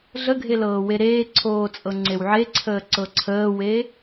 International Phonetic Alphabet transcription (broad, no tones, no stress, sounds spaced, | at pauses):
ɮ ə ɡʱ e l ɤː w e ɾ eː ǀʰ oː t͡sʼ ɤ ŋ͡ǀ e w ʕ e ǀʰ əː ǀ ɤ ǀʰ əː w e